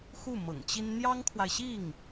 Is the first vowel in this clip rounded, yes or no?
yes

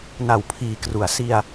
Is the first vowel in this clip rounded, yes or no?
no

